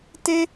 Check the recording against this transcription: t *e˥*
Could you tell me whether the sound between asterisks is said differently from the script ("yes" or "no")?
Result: no